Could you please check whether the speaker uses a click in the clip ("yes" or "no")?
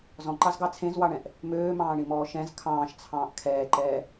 yes